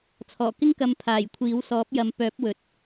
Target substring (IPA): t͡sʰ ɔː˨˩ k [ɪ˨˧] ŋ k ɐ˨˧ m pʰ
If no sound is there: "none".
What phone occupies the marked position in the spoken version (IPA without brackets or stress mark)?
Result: ɪ˥